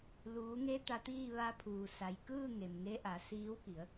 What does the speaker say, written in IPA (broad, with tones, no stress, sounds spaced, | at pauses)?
l uː˩˧ ŋ e˧ t̪ a˧ t̪ iː˥˨ ʋ a˧ pʰ uː˩ s a˩ j k ɯː˥˨ ŋ e˩ m ŋ e˧ ʔ a˩˧ s iː˧˥ w k i˩˧ ə̯